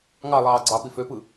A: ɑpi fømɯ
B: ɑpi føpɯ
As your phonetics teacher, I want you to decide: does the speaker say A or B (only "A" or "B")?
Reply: B